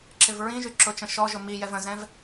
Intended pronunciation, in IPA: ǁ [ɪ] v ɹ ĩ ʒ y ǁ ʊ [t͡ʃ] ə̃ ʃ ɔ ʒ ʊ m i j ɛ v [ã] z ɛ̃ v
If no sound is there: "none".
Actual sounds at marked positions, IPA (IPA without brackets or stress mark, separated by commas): ɪ, t͡ʃ, ə̃